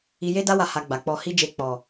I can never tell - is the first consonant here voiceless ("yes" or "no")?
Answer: no